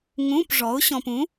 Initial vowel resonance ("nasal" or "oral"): nasal